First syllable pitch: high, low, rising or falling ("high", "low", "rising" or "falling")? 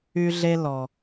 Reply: high